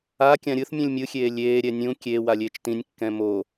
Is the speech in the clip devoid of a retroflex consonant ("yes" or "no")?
yes